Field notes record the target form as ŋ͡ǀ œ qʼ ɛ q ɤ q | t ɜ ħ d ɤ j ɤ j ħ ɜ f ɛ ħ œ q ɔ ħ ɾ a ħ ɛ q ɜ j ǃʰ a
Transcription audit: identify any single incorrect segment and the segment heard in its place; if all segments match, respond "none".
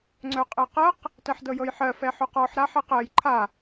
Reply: none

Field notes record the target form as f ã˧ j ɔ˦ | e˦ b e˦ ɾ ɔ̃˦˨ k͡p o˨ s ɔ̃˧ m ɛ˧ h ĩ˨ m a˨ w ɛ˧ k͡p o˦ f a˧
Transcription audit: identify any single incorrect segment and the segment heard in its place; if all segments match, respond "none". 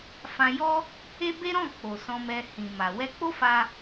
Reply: none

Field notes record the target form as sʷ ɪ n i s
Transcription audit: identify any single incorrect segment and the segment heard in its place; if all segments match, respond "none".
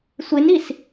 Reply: none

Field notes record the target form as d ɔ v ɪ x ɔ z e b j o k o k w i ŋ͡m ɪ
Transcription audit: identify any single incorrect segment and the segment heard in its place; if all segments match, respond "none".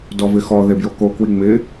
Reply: z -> ð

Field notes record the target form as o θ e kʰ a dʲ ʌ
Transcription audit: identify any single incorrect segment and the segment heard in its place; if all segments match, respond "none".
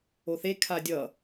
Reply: none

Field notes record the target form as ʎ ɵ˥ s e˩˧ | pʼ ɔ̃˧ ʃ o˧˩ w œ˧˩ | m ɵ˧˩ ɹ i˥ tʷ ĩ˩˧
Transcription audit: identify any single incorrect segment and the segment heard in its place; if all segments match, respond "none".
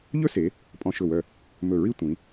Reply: o˧˩ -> ɵ˧˩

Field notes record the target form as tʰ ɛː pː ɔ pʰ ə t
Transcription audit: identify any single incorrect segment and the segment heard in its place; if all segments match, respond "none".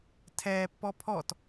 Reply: ə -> ɔ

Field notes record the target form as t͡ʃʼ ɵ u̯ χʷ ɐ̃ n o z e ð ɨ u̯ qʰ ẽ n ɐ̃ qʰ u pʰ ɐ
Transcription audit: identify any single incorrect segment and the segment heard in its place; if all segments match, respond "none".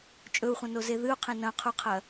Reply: pʰ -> qʰ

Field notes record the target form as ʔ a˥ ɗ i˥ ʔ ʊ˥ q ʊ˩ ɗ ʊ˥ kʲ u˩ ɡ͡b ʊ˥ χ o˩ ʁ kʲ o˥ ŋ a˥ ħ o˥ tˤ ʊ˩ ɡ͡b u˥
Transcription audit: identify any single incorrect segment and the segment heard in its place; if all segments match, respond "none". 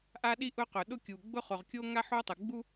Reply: none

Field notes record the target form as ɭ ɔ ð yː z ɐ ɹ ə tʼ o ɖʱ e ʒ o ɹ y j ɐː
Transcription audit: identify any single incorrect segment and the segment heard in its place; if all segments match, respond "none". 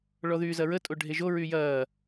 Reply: none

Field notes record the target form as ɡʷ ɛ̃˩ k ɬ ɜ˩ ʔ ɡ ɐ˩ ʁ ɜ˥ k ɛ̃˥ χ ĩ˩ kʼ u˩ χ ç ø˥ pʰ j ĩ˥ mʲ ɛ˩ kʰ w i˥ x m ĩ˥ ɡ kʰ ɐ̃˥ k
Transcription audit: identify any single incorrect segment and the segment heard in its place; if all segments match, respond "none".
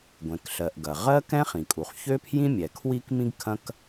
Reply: x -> k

